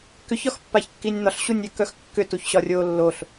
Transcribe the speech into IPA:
k ʏ ç ɒ x pː a ç kː i nʲ n̪ ɒ ɬ ɕ u nʲ ʏː k œ x kː ʏ t u ç ɕ ɒ rʲ oː lː o ɬ

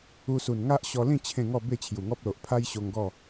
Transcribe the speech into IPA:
u˧ s u˨˩ n ŋ a˦ ʔ ɕ ɔ˧ l ĩ˥˧ t͡ɕʰ ẽ˥˧ ŋ ɔ˥˧ b e˥˧ t͡ɕʰ j u˨˩ ŋ ɔ˦ p̚ l o˨ ʔ pʰ a˦ j ɕ o˧ ŋ ɡ ɔ˥˧

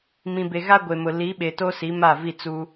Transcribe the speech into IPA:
m ĩ˨ b e˨ ɣ a˦ ɡʷ e˨ m ʊ˨ l i˨˦ ɓ e˨ t o˦ s i˨˦ m a˦˨ v i˦˨ t͡s u˦

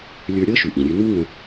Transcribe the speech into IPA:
lʲ ə˞˧ ɾʲ ɤ˥ ʃ ʉ˩ ʔ ĩ˩ ɾʲ ʉ˧ n u˥ ŋ ə̃˧

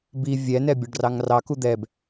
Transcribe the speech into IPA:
b i vʲ ɛ n ɛ bʲ ɒ ɖ r ɑ ŋ r ɑ k u d̪ ɛ b

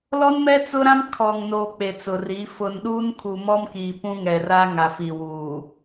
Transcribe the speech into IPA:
l ɔ˦ n m ɛ˦ t͡s ʊ˦ ɾ ã˦ m kʰ ɔ˨ ŋ n oː˨ k͡p e˨ t͡s ʊ˨ r i˨˦ f ʊ˨ n ɗ uː˦ n kʰ u˨ m ɔ˦ m k i˨ p ũ˦ ŋ ɛ˨ r a˦ ŋ a˨ f i˨ w uː˨

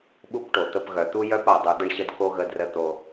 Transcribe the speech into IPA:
ɓ u˦ p ʈ o˨ t̪ ə˧ p ɣ œ˨ t̪ u˦ j œ˦ p a˨ dˤ u˨ d̪ ə˧ ɳ ɕ ə˧ d k o˦ ɣ ə˧ d r ə˧ t̪ o˧

